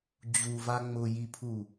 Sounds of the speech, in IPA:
d͡ʑ u v a ŋ͡m ʊ j i pʰ u

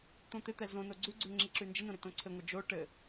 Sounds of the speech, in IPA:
t̪ õ t̪ ɪ t̪ ɛ z õ n o ɡ͡ǀ ʉ ɡ͡ǀ ʉ ŋ͡ǁ i ǁ ʉ n d͡ʒ ɪ n õ ɾ ɪ t õ ǀʰ ɘ ŋʷ ɘ d͡ʒ o ʈ ɘ

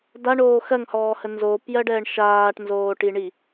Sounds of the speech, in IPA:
d a ɳ oː x ɜ ŋ h ɔː h ə n z oː p j ɜ ɖ ɛː ɳ ʃ aː ʈ n z oː ʈ i ɳ i

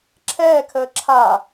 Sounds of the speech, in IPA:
ǁʰ ɛː kʰ əː ǁʰ a

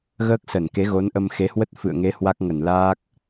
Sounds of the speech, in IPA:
ɣ əː˦˥ k̚ s ə˧˩ n k e˨˦ ɣ o˨˦ n ʔ ə˧ m x e˨˦ h w ə˦˥ t̚ f ɨ̰˧˨ ə̯ ŋ e˨˦ h w a˦˥ k̚ ŋ ə˧˩ n l aː˦˥ k̚

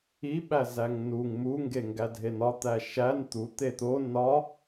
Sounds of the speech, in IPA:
i ɓ æ z æ ŋ n u ŋ m u ŋ ɡ e ŋ ɡ æ dʱ e n ɒ t̪ æ ʃ æ n t̪ u t̪ e t̪ o n ɒ

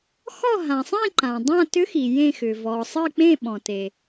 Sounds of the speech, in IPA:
x ɔ˦˨ ɦ ã˩ sˤ ĩ˦˨ ǃ ã˩ dˤ ã˦˨ t ʏ˧˥ x i˩ j ẽ˦˨ x ʏ˩ v ɔ˩ sˤ ɨ˦˨ k͡p ẽ˦˨ ɓ ɔ̃˩ t e˩

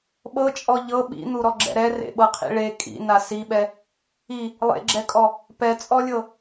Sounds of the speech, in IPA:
ɓ ɤ t͡ʃʼ ɔ ʎ ɤ ɓ ḭ n̪ u ɾ ɔ ɡ͡ǁ ɛ̰ ɾ ɛ r ḛ ɓ ɤ qʰ ḭ ɭ e kʼ ḭ n a s i ɓ ɛ | i | lˠ ḛ ɡ͡ǁ ɛ kʼ ɔ | p ɛ t͡sʼ ɔ lʲ ɤ

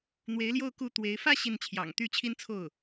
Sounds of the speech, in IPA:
n̪ w e˧˥ ɪ̯ l j o˥˧ ʊ̯ k u˥˩ t̪ w e˧˥ ɪ̯ f ä˥˧ ɕ i˥˩ n t͡ɕʰ j ɑ̰˨˩ ŋ t̪ y˥˩ t͡ɕʰ i˥ n t͡sʰ o˥˩ ʊ̯

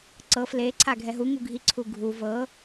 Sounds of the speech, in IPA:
ǀ ɤ f l e ǀʰ a ɡʱ ɛ ɦ u ŋ u ɡʱ i ǀʰ u ɡʱ u v ɤ

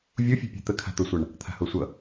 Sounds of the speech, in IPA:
vʲ u fʲ ṳ pʲ e̤ t̪ ə kʰ a̤ t̪ o sʷ a ɳ | t̪ʰ a̤ h o sʷ ʌ

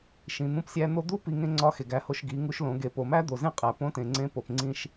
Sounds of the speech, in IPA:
ʃ ĩ˩ n̪ ũ˧ p sʲ æ˧ n̪ o˥ d̪ u˥ p i˧ ŋ ẽ˥ ŋ͡ǀ ɒ˧˥ x e˩ ɡ æ˧ h o˧ ʃ ɡ i˩˧ ŋ u˧ ʃ l õ˩˧ ɡ e˩˧ p o˩ m æ˥ d̪ o˩ z ẽ˥ qʼ æ˩ p õ˧˥ t ẽ˩ ŋ͡ǀ ẽ˧˥ p o˩ p ŋ͡ǀ ĩ˧ ʃ

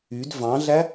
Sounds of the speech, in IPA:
y d v ɑ̃ ɮ æ

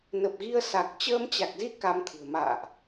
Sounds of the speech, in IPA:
n ə˨˩ p̚ ɣ i˧ ə̯ s a˨˩ k̚ t͡ɕ əː˧ m t͡ɕ a˨˩ k̚ z i˧ k a˧ m t̪ʰ ɨ̤˨˩ ə̯ m a̰ː˧˨ ʔ

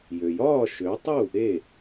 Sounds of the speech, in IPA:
j ø˩ j ɒː˥˩ ʃ ø˩˥ tˤ u˥˩ | e˥˩

